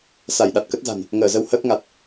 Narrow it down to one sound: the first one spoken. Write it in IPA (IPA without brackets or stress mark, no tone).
s